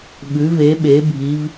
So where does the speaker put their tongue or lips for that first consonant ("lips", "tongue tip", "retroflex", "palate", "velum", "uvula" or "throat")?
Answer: lips